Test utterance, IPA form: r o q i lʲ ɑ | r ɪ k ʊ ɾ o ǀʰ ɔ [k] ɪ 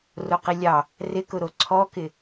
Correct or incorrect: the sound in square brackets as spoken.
correct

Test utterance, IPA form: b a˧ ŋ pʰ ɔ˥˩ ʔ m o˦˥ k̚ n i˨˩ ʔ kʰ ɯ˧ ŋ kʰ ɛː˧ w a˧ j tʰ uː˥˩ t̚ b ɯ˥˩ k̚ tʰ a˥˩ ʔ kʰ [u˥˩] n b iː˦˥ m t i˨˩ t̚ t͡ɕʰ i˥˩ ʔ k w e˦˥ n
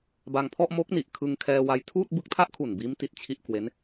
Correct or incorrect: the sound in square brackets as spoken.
incorrect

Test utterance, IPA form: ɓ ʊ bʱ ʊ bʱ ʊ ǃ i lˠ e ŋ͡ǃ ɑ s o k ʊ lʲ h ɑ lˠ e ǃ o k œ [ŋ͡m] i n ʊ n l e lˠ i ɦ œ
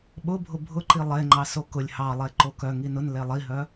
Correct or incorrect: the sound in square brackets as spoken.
incorrect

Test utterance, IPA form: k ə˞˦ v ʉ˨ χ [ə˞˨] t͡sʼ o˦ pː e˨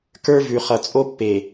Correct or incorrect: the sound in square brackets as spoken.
incorrect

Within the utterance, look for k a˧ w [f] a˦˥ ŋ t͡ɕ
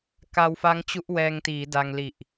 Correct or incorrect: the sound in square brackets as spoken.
correct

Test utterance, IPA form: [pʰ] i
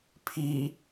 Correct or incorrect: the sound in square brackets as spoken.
correct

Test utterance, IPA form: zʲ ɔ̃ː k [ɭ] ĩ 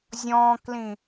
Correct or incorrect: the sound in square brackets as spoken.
incorrect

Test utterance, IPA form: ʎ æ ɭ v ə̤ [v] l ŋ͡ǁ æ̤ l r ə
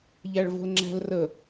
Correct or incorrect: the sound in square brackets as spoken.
incorrect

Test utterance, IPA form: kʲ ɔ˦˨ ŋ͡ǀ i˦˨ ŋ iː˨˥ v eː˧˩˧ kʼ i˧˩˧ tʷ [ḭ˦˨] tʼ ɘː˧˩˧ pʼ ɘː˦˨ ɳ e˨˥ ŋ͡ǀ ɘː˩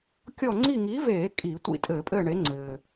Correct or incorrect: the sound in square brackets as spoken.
correct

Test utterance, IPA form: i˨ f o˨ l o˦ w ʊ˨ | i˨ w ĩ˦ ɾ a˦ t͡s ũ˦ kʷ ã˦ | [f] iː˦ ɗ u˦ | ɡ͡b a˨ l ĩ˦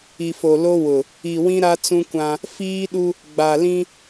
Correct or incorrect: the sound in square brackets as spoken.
correct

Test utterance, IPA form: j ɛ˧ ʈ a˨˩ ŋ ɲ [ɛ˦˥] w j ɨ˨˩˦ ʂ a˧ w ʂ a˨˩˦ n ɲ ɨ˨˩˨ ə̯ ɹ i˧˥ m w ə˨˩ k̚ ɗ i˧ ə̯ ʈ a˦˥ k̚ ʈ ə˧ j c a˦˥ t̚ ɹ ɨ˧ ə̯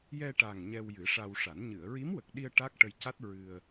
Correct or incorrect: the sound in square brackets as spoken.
incorrect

